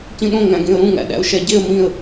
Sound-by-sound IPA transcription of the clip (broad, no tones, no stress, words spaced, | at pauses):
cĩɗõ ŋæ̃ɡẽə̯ɾũ ŋæ̰ɗæ̰ʊ̯ʃæɟeə̯ mĩə̯